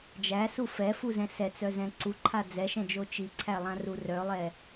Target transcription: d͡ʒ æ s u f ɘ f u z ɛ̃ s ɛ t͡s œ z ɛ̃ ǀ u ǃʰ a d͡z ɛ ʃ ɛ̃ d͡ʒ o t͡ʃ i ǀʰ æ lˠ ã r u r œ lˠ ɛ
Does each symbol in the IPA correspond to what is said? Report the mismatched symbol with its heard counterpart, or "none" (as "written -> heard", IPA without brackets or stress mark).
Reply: ɘ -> ɛ